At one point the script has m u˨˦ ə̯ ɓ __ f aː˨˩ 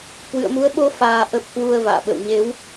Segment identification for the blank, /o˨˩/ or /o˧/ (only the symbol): o˧